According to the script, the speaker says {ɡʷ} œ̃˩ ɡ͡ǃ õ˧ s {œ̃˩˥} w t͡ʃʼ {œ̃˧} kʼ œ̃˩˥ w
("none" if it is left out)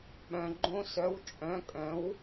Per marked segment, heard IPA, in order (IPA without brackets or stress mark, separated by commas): ɓ, œ˩˥, œ̃˩˥